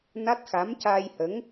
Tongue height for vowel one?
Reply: low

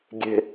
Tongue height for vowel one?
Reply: mid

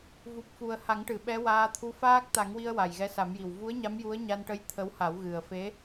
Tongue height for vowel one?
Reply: high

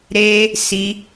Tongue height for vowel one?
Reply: mid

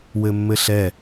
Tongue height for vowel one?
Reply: mid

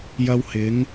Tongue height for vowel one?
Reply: low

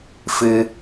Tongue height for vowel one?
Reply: high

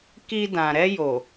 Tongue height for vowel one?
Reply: high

